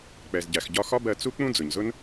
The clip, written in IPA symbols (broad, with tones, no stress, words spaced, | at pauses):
k͡pɛ˩zɟæ˩x ɟɒ˧xɒ˥bɜ˧ t͡su˥k͡pũ˥ d͡zʊ˩ɲzʊ˥n